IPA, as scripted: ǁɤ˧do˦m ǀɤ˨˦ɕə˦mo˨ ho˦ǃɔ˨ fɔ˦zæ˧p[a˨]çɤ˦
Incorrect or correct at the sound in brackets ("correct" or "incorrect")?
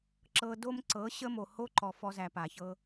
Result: correct